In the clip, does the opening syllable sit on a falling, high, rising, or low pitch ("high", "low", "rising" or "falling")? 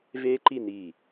high